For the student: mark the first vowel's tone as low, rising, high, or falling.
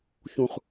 low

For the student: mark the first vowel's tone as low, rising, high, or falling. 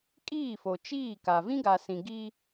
falling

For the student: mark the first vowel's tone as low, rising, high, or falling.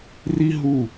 high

